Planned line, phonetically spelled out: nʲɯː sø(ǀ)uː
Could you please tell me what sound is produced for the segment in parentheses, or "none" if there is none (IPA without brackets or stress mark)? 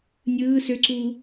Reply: ǀ